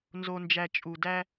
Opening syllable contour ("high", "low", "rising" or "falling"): low